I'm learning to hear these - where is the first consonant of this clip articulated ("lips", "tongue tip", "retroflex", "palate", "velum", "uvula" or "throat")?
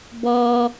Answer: lips